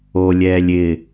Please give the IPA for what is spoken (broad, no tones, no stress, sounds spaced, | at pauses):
o lʲ ɛː lʲ ɪ